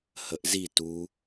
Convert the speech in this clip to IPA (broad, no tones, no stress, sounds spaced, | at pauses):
h ə ʔ z i t u